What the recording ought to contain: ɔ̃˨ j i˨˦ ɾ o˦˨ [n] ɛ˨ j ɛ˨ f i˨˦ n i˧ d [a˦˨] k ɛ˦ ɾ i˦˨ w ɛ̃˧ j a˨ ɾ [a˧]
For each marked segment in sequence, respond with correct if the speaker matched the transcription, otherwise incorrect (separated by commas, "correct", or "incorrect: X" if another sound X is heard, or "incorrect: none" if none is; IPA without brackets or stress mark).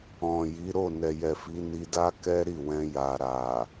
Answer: correct, incorrect: a˦, incorrect: a˨